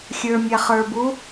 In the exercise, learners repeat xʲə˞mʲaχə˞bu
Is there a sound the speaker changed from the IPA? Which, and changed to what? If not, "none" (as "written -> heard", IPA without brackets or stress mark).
none